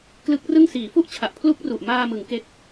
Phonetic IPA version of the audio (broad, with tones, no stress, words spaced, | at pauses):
klɯ˦˥k̚rɯ˥˩ŋ siː˩˦fu˥˩ʔt͡ɕʰa˨˩ʔ pʰlu˥˩k̚ru˨˩ʔ maː˧mɯ˩˦ŋ ke˦˥k̚